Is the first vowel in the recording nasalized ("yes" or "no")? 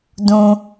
yes